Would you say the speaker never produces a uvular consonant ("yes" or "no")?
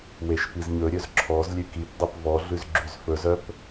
yes